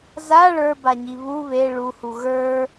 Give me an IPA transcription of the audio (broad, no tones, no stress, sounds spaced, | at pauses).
z a ɭ ə˞ b a ɲ i β u β e ɭ u h u ɣ ə˞